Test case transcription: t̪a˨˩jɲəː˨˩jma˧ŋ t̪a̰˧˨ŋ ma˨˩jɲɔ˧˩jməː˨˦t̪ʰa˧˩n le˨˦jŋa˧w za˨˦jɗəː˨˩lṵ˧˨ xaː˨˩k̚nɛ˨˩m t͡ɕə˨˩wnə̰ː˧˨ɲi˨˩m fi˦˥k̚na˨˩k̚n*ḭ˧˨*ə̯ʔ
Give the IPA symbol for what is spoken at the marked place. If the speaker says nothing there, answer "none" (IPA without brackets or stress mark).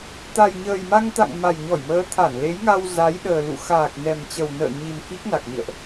ḭ˧˨